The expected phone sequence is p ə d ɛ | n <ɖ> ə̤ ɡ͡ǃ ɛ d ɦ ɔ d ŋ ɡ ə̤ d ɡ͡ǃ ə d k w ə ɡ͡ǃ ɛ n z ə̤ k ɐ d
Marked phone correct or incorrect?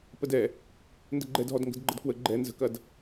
incorrect